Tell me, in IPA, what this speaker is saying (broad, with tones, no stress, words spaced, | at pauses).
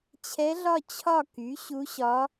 t͡ɕʰɛ˧˥ɮɒ˥˧ t͡ɕʰɒ˥˧ky˩˥ ɕu˧˥ɕɒ˧˥